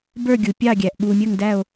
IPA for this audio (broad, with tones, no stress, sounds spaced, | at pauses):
b ə˞˦˨ ɡʲ u˨ pʲ ɑ˦˨ ɡʲ æ˨ ʔ ɓ uː˨ mʲ əː˦˨ ŋ d æ˦˨ o̯